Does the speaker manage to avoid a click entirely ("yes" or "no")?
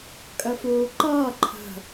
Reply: no